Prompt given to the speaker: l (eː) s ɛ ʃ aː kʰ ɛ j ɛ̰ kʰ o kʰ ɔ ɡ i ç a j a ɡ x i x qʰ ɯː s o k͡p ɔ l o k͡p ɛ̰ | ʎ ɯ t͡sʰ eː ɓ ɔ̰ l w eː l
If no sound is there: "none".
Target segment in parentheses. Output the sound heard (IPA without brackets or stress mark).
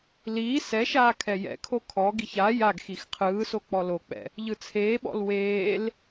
iː